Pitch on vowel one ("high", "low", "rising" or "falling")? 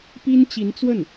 high